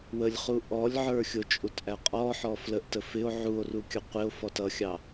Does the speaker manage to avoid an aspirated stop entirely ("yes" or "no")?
yes